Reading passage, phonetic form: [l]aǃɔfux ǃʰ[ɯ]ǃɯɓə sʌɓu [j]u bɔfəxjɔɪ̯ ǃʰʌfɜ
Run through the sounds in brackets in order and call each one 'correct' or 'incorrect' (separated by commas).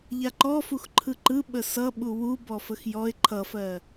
incorrect, correct, incorrect